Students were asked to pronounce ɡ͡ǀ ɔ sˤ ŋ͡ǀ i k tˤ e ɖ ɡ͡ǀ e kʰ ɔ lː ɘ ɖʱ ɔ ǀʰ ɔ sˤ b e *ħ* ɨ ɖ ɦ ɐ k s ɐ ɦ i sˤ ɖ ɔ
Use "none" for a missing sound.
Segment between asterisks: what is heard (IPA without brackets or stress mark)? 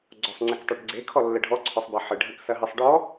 ħ